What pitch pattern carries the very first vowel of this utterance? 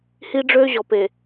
high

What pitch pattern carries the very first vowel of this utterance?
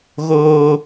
high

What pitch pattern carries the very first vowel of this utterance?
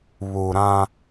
low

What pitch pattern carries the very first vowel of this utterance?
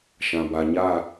low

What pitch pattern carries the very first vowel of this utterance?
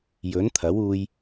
rising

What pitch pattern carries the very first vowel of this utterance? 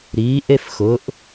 rising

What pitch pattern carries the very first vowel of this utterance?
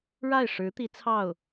falling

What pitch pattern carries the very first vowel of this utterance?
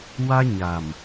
high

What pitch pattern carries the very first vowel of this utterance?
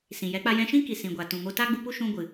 low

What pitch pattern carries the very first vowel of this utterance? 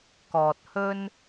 low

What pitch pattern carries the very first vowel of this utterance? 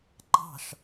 falling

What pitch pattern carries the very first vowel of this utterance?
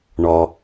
low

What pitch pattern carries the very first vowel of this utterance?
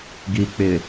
low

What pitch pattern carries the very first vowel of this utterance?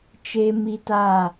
high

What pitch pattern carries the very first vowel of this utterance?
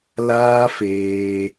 high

